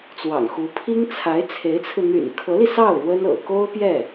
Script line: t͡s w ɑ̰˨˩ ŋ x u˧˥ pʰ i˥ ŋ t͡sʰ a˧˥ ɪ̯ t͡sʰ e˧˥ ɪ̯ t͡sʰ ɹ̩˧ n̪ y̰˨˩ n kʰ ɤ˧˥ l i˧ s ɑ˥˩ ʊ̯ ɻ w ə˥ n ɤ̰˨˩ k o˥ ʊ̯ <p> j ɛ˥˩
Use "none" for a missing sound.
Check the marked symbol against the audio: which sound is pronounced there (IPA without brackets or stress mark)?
p